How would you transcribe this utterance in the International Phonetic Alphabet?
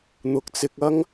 n̪ʊ˨k̚t͡sɪ˧k̚ɐ˥ŋ

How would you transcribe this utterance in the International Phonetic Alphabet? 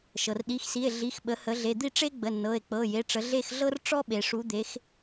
ʃɤ˩rɗi˩˧˩xsi˩˧˩e̯ ɮi˩˧˩xɓə˩˧hə˩˧ ɮe˩˧˩d̪i˦˨ ʈ͡ʂe˥ɡ͡bə˩˧˩nːɤ˩˧˩e̯k͡pɤ˩˧˩ je˩˧˩ʈ͡ʂə˩˧ ɮe˦˨xɮɤ˥r ʈ͡ʂɔ˥ɓe˩ʂu˩˧d̪e˩˧x

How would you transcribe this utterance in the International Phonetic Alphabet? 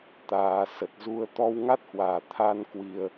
t̪aː˨˩sə˨˩t̚zu˧ə̯ t̪ɔ˧wŋa˦˥t̚hwaː˧˩t̪ʰa˧n kwi˧ə̯

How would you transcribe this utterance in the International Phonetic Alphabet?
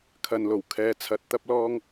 kʰɐ˨nlo˨˩wkʰɛː˧t͡sʰɐ˧t̚ t̪ɐ˥p̚lɔː˥ŋ

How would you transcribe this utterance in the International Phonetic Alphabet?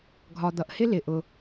ɡʱɒ˨d̪ʌ˨ʔhɪ˦ lɪ˨ʔʊ˨

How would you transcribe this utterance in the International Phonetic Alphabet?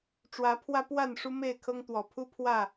ʈ͡ʂwä˨˦pʰwä˦pwa˥˨n ʂu˦me˥˨ɪ̯kʰɤ˦ŋt̪wɔ˨˩ pʰu˦pʰwä˥˨

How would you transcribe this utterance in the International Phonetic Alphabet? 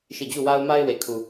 ʃi˦˨ d͡ʑu˦˨wa˦ʊ̯ma˦ɪ̯ we˨kʰu˨

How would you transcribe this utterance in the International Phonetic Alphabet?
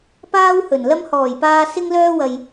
paː˥whɵ˨˩nlɐ˥m hɔː˨˩jpaː˧ sɪ˥ŋlœː˥wɐ˧j

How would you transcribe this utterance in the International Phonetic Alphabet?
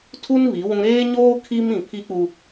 tʰu˦n βi˨˦wũ˦ ɾeː˦ɲoː˦ kʰi˦mĩ˨pʰi˦ k͡pu˦

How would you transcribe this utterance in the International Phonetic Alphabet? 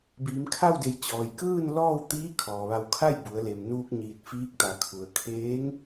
biː˩˧mkʰa˥˨wde˧˩j t͡ɕɔː˩jkɯː˥˨n lɔː˥˨wt̪iː˧˥ kʰɔː˩ʋa˧˩wkʰa˥˨j bu˩˧ə̯le˩mnuː˧k̚ ɲiː˧˩t̚fiː˧˥k̚t̪a˩˧kʰu˩ə̯ kʰeː˧˥ŋ

